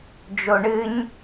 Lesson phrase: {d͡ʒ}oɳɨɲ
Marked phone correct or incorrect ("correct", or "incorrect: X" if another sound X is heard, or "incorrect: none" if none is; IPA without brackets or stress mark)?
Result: correct